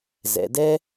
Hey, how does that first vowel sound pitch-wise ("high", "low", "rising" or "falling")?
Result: low